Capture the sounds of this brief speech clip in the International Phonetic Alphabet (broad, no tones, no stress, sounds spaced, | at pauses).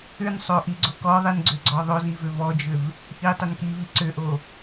ʏ n sˤ o ʔ i ɡ͡ǀ o k ɔ ðˤ i n ɡ͡ǀ ʏ ɡ͡ǀ ɔ ðˤ o z i v ʏ v ɔ d͡ʒ ʏ v | ʔ i tˤ ʏ n k i v i ǀ ʏ ʔ o